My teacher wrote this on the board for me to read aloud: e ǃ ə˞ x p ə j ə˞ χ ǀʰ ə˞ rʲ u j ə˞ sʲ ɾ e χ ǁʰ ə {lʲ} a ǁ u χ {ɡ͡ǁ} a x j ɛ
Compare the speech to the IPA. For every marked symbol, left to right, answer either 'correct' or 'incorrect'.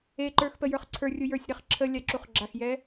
correct, correct

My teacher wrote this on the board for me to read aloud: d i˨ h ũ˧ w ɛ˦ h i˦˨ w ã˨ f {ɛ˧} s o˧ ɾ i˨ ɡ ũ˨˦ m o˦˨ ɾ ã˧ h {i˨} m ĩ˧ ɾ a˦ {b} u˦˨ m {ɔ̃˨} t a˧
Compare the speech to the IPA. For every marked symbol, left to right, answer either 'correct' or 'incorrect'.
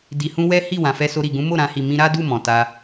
correct, correct, incorrect, correct

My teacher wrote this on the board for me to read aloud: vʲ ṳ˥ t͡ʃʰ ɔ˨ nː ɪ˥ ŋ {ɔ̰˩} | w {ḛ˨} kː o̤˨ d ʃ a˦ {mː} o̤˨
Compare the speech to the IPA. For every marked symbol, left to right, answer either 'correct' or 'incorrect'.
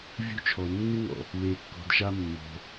correct, incorrect, correct

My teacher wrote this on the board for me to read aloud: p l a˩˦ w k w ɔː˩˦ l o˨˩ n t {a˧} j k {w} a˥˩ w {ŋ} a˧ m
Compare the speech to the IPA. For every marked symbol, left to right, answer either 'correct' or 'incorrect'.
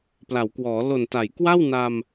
incorrect, correct, incorrect

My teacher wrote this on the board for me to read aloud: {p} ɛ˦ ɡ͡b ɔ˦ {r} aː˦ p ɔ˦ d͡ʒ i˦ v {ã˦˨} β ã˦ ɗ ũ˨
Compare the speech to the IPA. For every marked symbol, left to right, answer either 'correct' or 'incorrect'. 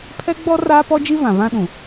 incorrect, correct, incorrect

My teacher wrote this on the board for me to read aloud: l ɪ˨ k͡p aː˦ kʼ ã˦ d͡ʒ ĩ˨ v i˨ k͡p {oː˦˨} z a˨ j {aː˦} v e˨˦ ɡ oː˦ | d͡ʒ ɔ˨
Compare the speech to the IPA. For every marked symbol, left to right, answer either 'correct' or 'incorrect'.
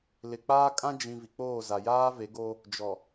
correct, correct

